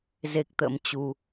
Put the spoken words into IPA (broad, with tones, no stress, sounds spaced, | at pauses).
z e˦˥ k̚ t̪ ə̰˧˥ m t͡ɕ u˧